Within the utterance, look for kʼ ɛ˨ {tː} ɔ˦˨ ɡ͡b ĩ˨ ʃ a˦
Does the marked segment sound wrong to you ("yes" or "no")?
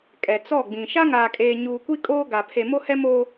yes